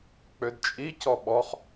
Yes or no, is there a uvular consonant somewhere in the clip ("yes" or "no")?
yes